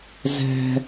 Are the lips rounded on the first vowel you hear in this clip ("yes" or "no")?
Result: no